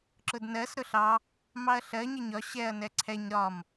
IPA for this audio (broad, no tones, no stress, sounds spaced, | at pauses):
ǁ ʊ d n ɜ s ɾ ʊ ɬ ɑ | m ɑ ɐ̯ ɬ ɜ ɲ ɪ ɲ ɒ ɕ ɛ ɐ̯ n ɛ ǀʰ ɛ ɲ ɾ ɒ m